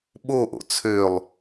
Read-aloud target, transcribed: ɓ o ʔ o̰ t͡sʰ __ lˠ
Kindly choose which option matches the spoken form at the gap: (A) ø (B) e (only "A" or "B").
A